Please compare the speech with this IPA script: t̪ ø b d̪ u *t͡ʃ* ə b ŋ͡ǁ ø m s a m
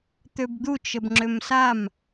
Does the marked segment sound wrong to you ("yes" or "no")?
no